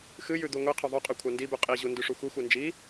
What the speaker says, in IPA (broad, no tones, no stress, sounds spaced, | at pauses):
x ɨ j ʉ d̪ u ŋʷ i qʰ ɵ ðˤ ɵ qʼ ɵ kʷʰ a n d i b ʉ qʼ i ʑ u n d ʉ ʂ u xʷ i xʷ e n d͡ʒ i